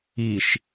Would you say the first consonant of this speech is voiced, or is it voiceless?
voiceless